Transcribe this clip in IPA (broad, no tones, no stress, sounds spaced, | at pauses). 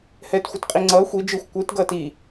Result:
h ɛː t xʷ ɯ t qʼ i ŋ͡ǀ ʌː xʷ i d͡ʒ ɯ xʷ kʷ ɯ t ɡ ʌː t i